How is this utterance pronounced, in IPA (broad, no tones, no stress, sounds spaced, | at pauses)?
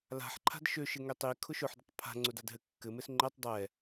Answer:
l a̤ ħ ǃʰ a̤ d ʃ ø ʃ ɘ ŋ ø tˤ i kʰ ʊ ʃ ʊ ħ d ɘ tˤ pʰ a̤ ŋ͡ǀ ʊ d a d ɦ ɘ kː ɘ m ɘ s ŋ͡ǃ ɛ tˤ dˤ ɛ